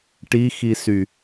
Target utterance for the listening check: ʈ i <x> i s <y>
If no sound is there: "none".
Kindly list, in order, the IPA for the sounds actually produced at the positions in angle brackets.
x, y

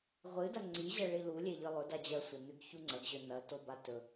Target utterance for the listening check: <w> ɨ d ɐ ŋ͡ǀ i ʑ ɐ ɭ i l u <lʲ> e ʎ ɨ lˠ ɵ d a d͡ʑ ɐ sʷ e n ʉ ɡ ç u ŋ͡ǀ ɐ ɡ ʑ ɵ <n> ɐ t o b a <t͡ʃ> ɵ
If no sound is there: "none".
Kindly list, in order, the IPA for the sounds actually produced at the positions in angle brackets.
ʁʷ, lʲ, n, t

